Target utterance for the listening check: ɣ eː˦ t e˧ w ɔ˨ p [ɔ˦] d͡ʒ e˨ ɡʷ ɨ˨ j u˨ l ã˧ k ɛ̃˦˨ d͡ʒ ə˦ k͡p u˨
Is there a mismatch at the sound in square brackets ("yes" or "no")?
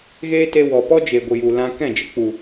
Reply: no